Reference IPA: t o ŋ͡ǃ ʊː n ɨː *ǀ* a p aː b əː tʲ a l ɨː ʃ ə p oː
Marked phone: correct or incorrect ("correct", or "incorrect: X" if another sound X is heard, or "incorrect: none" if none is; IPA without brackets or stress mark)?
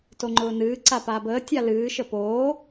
correct